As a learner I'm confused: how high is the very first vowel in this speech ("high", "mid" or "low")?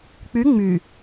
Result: high